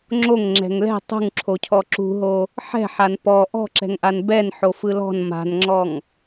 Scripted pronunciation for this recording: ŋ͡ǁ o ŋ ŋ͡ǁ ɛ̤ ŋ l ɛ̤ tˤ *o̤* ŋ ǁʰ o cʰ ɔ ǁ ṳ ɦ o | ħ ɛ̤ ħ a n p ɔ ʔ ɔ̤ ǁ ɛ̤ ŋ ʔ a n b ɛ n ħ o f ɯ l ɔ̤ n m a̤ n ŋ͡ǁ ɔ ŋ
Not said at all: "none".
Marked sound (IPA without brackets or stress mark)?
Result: ṳ